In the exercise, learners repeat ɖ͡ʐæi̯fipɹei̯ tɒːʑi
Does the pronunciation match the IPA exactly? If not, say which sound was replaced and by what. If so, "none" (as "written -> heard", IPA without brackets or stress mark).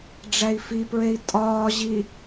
t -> tʼ